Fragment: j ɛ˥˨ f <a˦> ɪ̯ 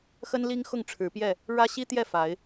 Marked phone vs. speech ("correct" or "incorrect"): incorrect